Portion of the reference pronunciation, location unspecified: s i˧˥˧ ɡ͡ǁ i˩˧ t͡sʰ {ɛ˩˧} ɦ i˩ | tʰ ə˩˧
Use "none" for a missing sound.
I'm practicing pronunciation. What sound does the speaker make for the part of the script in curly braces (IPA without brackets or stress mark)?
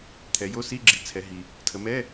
ɛ˩˧